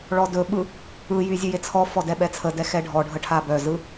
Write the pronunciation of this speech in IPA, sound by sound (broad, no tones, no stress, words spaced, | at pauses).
ɭɔdɵɓɯ | ɯjy zʲɯjet͡sʰɔfɔ dɛɓɛt͡sʰədɛ xɛɖʱɔɖʱə ʈʰabœzɯ